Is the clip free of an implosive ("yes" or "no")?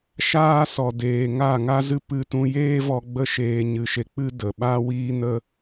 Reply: no